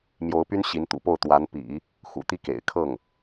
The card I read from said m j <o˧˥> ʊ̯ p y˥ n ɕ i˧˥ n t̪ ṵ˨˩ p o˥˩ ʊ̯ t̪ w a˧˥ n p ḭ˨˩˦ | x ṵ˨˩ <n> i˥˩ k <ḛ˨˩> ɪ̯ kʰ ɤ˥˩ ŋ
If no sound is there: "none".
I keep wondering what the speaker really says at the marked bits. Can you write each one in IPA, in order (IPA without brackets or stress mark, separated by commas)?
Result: o˧˥, t̪, ḛ˨˩